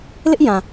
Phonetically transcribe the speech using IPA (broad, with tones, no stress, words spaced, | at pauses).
lɪ˦ʔjã˨